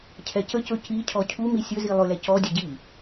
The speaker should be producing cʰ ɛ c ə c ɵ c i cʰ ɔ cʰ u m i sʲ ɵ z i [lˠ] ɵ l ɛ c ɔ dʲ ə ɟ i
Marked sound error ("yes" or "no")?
no